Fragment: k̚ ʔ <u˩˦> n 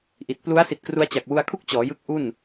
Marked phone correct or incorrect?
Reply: incorrect